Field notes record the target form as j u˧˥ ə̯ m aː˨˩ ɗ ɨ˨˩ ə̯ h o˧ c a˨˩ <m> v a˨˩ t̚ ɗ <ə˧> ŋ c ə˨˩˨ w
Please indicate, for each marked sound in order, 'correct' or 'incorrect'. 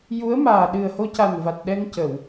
incorrect, incorrect

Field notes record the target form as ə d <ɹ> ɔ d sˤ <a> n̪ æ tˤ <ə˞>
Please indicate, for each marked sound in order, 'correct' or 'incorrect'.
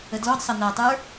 incorrect, incorrect, correct

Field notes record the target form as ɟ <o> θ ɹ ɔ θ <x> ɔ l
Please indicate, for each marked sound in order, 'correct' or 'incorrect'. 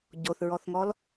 correct, incorrect

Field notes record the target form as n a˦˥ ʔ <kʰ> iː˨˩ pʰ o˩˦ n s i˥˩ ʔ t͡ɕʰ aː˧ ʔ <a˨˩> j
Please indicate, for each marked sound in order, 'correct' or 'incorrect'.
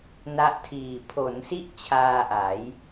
incorrect, incorrect

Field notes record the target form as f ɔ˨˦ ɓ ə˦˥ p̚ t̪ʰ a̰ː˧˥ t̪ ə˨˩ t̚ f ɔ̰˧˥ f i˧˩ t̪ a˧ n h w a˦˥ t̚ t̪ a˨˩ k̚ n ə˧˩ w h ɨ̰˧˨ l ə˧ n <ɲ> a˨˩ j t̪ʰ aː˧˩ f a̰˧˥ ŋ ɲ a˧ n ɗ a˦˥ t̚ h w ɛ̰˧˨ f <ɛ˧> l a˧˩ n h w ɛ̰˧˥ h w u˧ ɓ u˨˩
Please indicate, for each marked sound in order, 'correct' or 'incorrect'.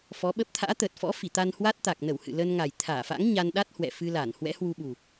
incorrect, incorrect

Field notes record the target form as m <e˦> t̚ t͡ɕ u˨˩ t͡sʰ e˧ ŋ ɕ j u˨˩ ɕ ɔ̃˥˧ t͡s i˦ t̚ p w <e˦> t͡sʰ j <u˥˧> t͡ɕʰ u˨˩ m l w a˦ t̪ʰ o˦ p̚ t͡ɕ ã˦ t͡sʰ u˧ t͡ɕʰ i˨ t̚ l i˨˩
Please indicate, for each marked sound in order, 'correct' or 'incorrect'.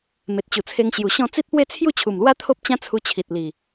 incorrect, correct, correct

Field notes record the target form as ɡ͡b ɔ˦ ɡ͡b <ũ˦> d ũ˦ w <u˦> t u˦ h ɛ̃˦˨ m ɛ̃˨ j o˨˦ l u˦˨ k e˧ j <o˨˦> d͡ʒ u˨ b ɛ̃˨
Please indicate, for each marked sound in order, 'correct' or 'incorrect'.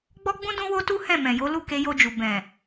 correct, incorrect, incorrect

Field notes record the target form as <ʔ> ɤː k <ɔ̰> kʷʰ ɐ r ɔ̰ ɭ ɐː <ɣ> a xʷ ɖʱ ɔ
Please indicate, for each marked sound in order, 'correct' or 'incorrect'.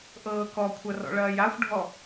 correct, incorrect, incorrect

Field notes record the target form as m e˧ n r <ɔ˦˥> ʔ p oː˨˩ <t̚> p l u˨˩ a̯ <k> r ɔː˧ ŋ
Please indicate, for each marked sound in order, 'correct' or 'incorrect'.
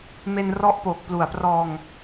correct, incorrect, incorrect

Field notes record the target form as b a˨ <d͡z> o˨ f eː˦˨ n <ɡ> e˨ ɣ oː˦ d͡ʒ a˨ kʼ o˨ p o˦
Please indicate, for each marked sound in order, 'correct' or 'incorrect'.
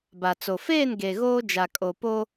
incorrect, correct

